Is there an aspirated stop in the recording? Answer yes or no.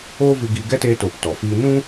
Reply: no